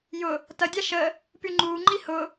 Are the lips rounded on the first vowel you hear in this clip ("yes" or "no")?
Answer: yes